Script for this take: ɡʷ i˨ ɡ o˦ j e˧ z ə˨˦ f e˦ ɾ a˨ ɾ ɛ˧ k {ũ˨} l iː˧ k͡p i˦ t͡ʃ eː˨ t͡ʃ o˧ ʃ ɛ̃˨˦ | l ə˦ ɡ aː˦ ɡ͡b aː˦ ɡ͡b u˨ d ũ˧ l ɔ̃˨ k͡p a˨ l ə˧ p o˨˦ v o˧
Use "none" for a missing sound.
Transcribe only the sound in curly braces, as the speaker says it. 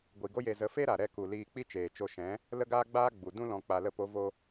u˨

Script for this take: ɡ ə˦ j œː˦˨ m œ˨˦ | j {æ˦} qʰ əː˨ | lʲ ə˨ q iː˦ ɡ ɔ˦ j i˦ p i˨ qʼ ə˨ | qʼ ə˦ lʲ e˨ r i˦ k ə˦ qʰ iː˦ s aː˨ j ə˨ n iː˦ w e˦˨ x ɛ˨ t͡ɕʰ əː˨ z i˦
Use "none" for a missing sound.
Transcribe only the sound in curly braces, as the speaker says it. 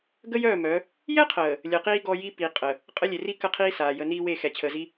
ɛ˦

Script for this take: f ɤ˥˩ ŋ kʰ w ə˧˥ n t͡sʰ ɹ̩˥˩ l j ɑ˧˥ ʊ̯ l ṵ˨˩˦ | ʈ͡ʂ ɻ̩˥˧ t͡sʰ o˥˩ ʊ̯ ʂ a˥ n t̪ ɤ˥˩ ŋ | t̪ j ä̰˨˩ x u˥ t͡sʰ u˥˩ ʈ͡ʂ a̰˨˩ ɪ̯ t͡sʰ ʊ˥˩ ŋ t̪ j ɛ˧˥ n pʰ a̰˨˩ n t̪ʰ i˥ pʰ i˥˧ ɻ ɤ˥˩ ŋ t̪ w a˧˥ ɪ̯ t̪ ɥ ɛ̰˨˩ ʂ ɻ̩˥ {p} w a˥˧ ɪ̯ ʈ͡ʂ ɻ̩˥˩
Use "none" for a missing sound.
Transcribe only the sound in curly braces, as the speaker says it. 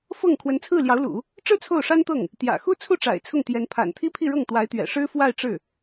f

